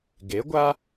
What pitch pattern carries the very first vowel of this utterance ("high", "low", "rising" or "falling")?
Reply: rising